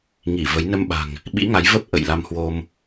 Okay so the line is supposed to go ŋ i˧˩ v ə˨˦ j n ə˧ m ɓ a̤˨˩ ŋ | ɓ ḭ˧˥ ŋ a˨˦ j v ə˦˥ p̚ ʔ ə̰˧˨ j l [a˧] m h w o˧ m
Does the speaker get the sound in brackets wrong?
no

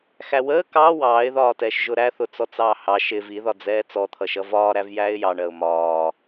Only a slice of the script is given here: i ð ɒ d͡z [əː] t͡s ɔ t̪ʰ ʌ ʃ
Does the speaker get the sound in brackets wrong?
yes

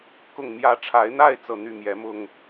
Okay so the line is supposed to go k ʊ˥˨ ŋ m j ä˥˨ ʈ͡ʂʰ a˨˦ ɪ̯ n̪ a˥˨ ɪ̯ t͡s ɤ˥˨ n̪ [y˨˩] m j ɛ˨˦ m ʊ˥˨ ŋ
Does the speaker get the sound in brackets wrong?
yes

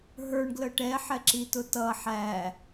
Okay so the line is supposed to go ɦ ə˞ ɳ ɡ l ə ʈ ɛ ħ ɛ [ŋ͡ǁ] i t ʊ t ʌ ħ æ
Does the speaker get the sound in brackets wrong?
yes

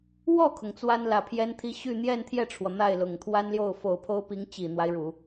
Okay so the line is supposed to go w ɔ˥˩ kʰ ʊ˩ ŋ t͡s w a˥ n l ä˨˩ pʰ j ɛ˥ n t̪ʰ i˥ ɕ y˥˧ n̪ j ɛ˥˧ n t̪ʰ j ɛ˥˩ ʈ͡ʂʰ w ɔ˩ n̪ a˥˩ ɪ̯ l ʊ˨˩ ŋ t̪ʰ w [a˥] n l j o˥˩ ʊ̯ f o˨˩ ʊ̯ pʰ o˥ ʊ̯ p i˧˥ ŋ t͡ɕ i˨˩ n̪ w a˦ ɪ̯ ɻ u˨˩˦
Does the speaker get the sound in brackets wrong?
no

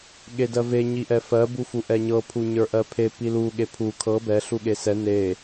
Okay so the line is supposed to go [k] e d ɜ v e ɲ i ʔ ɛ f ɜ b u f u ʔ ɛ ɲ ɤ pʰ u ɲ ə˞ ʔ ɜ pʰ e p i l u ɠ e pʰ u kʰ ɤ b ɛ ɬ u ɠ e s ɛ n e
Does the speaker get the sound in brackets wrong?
yes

